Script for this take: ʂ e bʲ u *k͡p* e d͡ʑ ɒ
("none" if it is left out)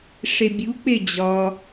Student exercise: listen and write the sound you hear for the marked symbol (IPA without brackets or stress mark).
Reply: k͡p